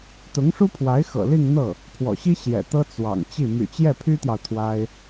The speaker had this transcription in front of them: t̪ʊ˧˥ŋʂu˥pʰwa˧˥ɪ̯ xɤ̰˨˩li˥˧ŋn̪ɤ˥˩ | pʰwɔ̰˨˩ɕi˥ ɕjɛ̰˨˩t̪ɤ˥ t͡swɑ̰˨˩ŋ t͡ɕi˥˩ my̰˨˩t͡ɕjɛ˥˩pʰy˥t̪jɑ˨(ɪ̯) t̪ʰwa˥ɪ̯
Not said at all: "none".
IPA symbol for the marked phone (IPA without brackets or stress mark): ʊ̯